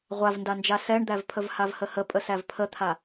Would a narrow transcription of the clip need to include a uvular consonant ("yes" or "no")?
yes